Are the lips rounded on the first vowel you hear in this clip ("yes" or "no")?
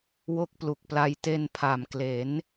yes